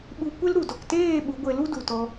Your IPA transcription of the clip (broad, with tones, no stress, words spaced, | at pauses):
ɓu˧kʷe˦lɾu˨dɔ˨k teː˦˨ ɓu˨˦ɡʷe˧lu˦ du˨tɔ˧